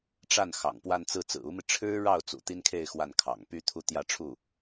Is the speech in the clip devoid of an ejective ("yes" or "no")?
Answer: yes